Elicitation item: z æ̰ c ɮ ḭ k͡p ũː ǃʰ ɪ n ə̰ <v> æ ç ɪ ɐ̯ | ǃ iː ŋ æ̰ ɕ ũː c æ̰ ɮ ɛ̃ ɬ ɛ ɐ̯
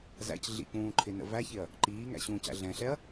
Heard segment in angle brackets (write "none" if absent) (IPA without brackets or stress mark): v